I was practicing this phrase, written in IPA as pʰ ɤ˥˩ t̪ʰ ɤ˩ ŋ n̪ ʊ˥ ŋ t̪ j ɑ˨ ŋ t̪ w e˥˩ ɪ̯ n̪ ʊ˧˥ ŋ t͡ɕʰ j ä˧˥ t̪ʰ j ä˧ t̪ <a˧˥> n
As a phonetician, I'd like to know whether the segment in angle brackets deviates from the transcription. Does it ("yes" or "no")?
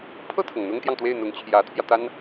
yes